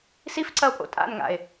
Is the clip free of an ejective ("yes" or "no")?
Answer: no